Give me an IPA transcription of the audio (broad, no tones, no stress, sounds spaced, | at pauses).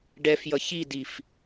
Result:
ɖ ɛ f j ʌ ç i d i f